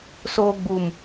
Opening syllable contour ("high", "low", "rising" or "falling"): high